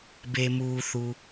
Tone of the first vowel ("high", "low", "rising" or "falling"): low